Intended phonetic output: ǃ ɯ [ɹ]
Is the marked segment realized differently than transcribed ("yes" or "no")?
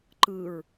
no